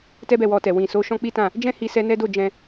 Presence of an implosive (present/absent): absent